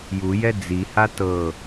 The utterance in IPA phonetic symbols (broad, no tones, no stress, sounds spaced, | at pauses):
j u j ɛ d͡z i h a t ɤ